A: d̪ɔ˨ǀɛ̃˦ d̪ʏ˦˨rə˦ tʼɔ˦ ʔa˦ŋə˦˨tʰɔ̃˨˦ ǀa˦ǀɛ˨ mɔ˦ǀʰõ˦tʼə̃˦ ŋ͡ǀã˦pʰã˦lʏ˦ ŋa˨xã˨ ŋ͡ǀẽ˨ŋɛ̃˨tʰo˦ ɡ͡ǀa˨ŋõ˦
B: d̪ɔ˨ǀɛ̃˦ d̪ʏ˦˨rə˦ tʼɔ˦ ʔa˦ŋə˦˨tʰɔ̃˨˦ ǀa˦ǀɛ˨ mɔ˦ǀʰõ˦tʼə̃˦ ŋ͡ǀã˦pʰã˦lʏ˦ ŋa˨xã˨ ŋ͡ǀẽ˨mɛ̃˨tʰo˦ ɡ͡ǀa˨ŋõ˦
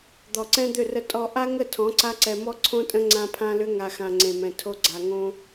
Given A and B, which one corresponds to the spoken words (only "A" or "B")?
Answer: B